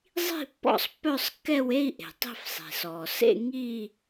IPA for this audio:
zˤ i̤˥˧ pː ɔ̰˥˧ sˤ pː œ˥˧ sˤ kː ɛ˥˧ w e˥˧ i̯ ʔ e̤˩ tˤ i̤˥˧ f sˤ e̤˩ s ɔː˩ s ḛ˥˧ ŋ i˥˧

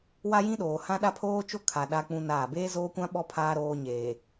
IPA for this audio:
w a˦ j ĩ˦ ɗ oː˨ h ã˦ ɗ a˦ pʰ oː˦ t͡ʃ o˦ kʰ a˨ ɗ a˦ k͡p ũ˦ n aː˦˨ b eː˦ z oː˦ kʷ ã˦ ɓ ɔ˦ pʰ aː˦ ɾ oː˦ ɲ eː˨

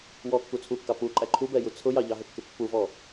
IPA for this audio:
w ɔ kː u t͡sʰ u kː ɑ p u ǃʼ æ ǃʰ u b ɛ j u t͡sʰ ʊ j ɑ ʎ ɑ ɦ ə kː ɪ pː u v ɔ

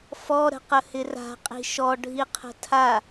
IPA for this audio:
f ɔ ɾ ə̤ q ə h ɪ r a̤ qʼ i̤ ʃ ɔ ɖʱ i qʰ ə̤ tʰ a

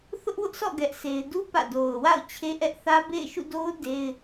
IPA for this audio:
θ ʊ˦ ʔ w ʊ˦ ʔ sʰ ɔ̰˦˨ ɡ ɛ˦ ʔ sʰ e˦ ɪ̯ d u˦ p ä̰˦˨ d o˨ ʊ̯ w a̰˦˨ ʊ̯ t͡ɕʰ e˦ ʔ ɛ˦ ʔ θ ä˦ b ḛ˦˨ ɪ̯ ʃ ṵ˦˨ d o˦ ʊ̯ d e˦ ɪ̯

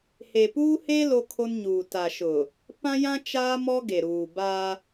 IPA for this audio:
h e˨ p uː˦ h e˦ l o˦ kʰ o˦ n ɲ uː˨ t a˨ ʃ ʊ˨ | p ã˦ j ã˦ t͡ʃ aː˦ m ɔ˦ ɡ e˨ ɾ uː˨ b a˦

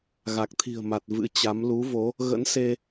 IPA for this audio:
ɣ a˨˩ k̚ t̪ʰ i̤˨˩ ə̯ m a˨˩ t̚ v ɨ̰˧˥ t͡ɕ a˨˦ m l u˨˦ v o˨˦ | ɣ ə̰˧˥ n s e˧

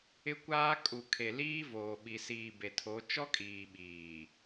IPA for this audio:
ɪ˦ kʷ aː˦ kʼ u˨ kʰ e˨ l iː˦ v oː˨ ɓ i˨ s iː˨ b e˨ tʰ o˨˦ t͡ʃ ɔ˦ kʼ iː˨ ɓ iː˨

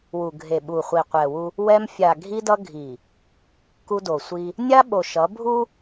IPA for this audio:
w u˨ ɡʱ e˨ ɓ u˨ χʷ i˨ qʷ ɛ˨ w u˦ | w ɛ˦ m fʲ a˨ ɡʱ i˦ d ʌ˦ ɡʱ i˨ | k u˦ d o˨ sʷ i˦ | nʲ a˦ ɓ o˨ ʃ ʌ˨˦ bʱ u˦

